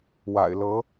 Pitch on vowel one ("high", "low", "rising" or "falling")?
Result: low